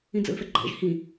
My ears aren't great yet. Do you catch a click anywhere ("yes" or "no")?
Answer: yes